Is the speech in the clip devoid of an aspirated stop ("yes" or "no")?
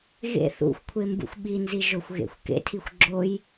no